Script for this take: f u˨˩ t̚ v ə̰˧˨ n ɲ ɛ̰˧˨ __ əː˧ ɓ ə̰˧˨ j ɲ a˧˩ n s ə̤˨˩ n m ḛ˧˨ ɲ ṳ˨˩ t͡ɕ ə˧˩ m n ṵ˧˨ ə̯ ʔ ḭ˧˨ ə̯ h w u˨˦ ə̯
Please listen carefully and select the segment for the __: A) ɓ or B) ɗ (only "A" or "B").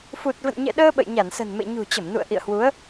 B